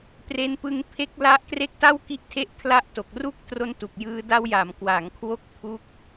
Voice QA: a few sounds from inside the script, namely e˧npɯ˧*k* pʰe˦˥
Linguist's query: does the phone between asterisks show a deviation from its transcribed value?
yes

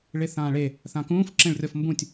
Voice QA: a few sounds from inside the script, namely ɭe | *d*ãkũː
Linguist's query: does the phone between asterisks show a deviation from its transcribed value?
yes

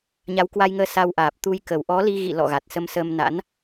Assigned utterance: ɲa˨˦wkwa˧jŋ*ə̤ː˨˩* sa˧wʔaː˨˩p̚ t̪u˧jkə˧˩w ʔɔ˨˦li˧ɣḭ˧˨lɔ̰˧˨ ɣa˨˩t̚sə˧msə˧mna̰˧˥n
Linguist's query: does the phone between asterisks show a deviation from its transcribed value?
yes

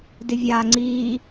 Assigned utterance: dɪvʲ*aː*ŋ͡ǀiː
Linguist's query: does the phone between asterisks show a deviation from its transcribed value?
no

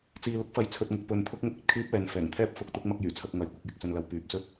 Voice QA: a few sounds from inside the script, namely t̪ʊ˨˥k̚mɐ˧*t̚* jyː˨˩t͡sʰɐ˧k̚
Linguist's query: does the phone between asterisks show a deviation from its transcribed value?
yes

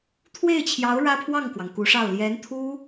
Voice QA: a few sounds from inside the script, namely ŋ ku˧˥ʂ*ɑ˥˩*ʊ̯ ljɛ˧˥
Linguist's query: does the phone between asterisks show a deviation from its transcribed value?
no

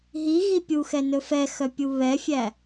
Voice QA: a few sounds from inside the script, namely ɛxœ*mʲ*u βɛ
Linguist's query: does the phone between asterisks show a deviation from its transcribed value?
yes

